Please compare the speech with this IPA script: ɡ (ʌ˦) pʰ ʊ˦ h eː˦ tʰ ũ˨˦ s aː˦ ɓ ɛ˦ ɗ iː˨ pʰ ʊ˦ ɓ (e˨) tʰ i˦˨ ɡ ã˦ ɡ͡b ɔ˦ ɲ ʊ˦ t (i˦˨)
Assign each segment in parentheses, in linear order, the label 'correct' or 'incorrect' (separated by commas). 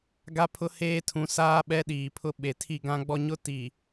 incorrect, correct, incorrect